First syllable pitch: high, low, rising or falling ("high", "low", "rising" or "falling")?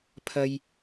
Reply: high